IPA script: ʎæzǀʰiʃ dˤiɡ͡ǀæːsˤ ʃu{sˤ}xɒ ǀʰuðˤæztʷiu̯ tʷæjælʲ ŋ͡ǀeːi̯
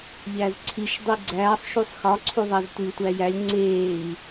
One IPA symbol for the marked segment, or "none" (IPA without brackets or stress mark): sˤ